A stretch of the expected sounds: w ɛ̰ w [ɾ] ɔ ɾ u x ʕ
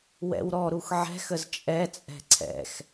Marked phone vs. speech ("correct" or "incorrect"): correct